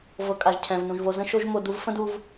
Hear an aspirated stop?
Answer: yes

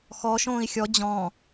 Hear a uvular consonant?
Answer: no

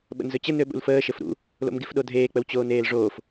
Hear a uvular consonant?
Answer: no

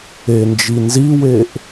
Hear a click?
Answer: no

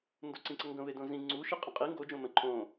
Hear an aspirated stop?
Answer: yes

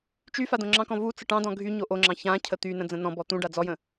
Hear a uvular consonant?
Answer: no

